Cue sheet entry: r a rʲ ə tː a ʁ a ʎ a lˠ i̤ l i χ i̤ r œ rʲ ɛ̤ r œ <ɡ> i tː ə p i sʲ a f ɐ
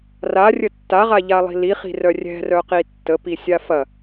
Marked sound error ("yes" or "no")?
yes